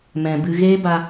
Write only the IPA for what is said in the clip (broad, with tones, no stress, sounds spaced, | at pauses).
m ɛ̃˨ b ɨ˧ ɣ eː˦ b a˧